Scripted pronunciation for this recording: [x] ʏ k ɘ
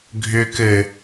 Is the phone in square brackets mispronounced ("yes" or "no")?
yes